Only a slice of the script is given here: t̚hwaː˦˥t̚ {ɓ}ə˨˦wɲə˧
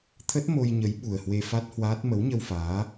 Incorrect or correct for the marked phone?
incorrect: m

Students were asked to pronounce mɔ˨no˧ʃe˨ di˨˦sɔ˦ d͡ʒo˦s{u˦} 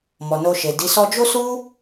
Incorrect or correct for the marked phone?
correct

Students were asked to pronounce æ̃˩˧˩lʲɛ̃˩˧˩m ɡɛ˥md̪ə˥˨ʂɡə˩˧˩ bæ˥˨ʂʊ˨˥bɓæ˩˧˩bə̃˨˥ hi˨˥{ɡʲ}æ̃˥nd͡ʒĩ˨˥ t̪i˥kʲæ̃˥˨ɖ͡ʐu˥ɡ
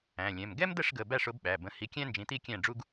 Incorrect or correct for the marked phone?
incorrect: kʲ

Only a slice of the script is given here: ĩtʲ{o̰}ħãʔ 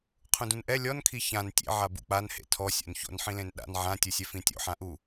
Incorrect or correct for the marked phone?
correct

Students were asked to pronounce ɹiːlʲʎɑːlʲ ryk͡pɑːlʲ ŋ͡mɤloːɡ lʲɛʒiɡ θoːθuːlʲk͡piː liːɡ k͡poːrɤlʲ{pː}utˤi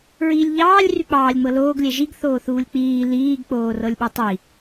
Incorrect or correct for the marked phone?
incorrect: ɓ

